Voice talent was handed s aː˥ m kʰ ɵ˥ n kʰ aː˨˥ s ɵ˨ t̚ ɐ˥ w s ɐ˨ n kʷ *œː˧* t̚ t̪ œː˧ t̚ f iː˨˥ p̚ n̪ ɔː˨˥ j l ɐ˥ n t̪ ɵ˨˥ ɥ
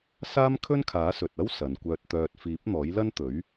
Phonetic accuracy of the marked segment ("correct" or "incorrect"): correct